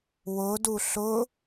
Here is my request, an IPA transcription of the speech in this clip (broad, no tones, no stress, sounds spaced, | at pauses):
w ʊ d u ɬ ʊ